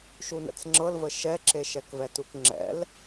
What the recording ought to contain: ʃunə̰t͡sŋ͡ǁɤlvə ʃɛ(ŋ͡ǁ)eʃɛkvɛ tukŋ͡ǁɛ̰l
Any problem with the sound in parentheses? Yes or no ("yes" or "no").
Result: yes